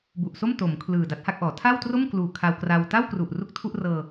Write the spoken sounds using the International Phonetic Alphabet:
b u˨˩ ʔ s o˥˩ m t o˩˦ m kʰ l ɯː˨˩ d a˦˥ t̚ h a˥˩ k̚ ʔ ɔː˩˦ tʰ a˥˩ w t r o˥˩ m k l uː˨˩ kʰ a˧ w k r a˧ w t a˥˩ w k r u˨˩ ʔ r u˦˥ k̚ tʰ u˥˩ ʔ r ɤː˧

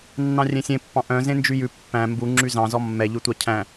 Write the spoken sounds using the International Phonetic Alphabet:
nː ɑ̃ rʲ ẽ sʲ ẽ pː ɑ̃ ʔ œ̃ z ẽ n d͡ʒ y j ʉ pː æ̃ m b u ŋ͡ǁ y z ɑ̃ z ɔ mː ɛ ʎ y tʷ ɑ cʰ æ̃

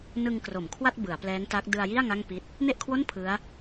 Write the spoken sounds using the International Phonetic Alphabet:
n ɯ˧ ŋ k r o˩˦ m kʰ w a˥˩ t̚ b ɯ˩˦ a̯ p l ɛː˦˥ ŋ t a˦˥ k̚ d ɯ˧ a̯ j i˥˩ a̯ ŋ a˥˩ ŋ p i˦˥ t̚ | n e˥˩ ʔ kʰ w o˥˩ n pʰ ɯ˦˥ a̯

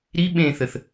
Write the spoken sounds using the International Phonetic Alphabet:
ɾ i ɓ ẽ θ ə θ

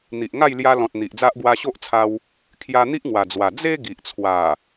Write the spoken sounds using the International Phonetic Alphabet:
n̪ i˨ ʔ ŋ a˥˧ j l j a˧ l ɔ̃˨ t̚ n̪ i˨ ʔ d͡z a˦ ʔ ɡ w a˧ ɕ o˦ ʔ t͡sʰ a˧ w | kʰ j a˧ n̪ i˦ ʔ ŋ w a˨˩ d͡z w a˨˩ d͡z e˦ ɡ i˨ ʔ t͡sʰ w a˨˩

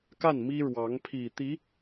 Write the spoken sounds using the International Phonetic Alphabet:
k a˥˩ n m i˥ ɻ w ɑ˧˥ ŋ pʰ i˨˩ t̪ i˧˥

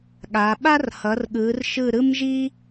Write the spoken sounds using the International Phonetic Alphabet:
ɠ a˩˧ ɓ a˥ r h ʌ˩˧ r ɠ ɯ˩˧ r ʃ ɯ˧˩ ɾ ɯ˥ m ʒ i˥

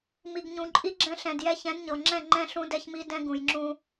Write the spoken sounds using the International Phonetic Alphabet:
m i˨ ɡ ɲ ũ˨ ǃʼ i˦ ɡ͡ǁ ɛ̃˦ ɬ ɛ̃˨ d j ɛ˦ ç ɛ̃˨˦ d ɲ ɤ˨ ŋ͡ǁ ɛ̃˦˨ ŋ͡ǃ ɛ̃˦ ɬ ũ˦ d ɛ˦ ç m i˦ d ɛ̃˦ ɡ ũ˨ j ŋ͡ǁ ũ˦

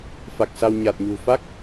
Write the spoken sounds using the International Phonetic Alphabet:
f a˨˩ k̚ s a˧ w ɲ a˨˩ t̚ ɲ ṳ˨˩ f a˦˥ k̚

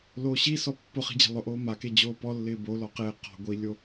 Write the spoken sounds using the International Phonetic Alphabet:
l oː ɕ i s ɔ pː ʊ χ i̤ d͡ʑ e̤ lˠ ʊ ʔ oː m a k e d͡ʑ oː p ɔ lː ɪː b o l ɔ q ɪː q ɔ̤ ɡʷ i lʲ o

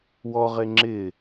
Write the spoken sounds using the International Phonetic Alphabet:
w ɔ ʁ e ŋ͡ǁ ɪ

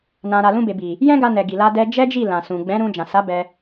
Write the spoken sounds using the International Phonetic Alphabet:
n ã˨ ɾ a˨ l ũ˧ b e˨ b i˨ | j ɛ̃˦ ɡ a˧ n ɛ˨ ɡ i˨ l a˧ d ɛ˧ d͡ʒ ɛ˦ d͡ʒ i˦˨ l ã˨ s ũ˨ ɡ͡b ɛ̃˨˦ ɾ ũ˧ d͡ʒ ã˨ s a˨˦ b ɛ˧

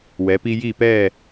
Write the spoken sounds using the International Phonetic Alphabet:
w ɛ˩˧ p i˧ j iː˧˩ p ɛː˧˩

